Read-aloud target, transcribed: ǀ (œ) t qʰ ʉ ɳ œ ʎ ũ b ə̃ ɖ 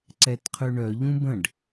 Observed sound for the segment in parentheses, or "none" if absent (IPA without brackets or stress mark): ɛ